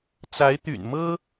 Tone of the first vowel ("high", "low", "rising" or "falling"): rising